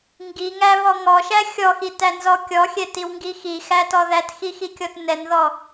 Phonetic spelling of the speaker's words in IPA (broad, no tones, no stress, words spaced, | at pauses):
ŋɡiŋæβɔ ŋɔʃæ xʲɔxitænzɔ kʲɔxʲɛtiwŋɡi xixætɔ ðætxixikʲɔt nɛnðɔ